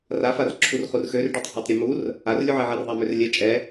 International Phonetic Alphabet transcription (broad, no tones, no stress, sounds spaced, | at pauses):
r a f a r ǁʰ u r χ u r x ø r ɖ ø tˤ h ø tˤ ɾʲ ɛ m u r | a r lʲ u ʕ ɛ ʕ ɛ r ðˤ a m ø r lʲ ɛ t͡ʃʼ ɛ